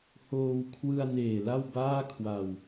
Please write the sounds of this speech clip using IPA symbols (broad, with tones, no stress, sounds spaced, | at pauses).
h oː˧ w kʰ w ɯ˧ a̯ n eː˨˩ l a˥˩ w b aː˥˩ kʰ w a˧ w